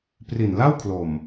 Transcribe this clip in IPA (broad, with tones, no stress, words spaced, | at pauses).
pri˨˩nla˥˩wkʰlo˨˩m